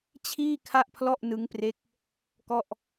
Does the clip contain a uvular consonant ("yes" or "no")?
no